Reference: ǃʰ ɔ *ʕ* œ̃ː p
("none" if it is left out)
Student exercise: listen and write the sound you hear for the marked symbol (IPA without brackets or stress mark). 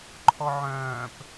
ʕ